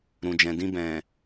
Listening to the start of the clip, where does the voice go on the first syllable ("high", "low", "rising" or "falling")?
low